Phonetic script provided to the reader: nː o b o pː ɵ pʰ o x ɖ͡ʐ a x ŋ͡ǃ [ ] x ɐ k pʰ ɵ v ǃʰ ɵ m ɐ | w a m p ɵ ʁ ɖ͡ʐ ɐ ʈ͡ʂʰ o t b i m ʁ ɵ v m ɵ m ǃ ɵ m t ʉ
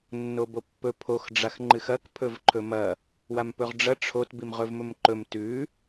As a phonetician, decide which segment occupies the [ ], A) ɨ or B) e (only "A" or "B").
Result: A